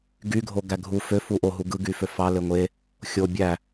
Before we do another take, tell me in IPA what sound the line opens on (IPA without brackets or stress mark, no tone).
ɡ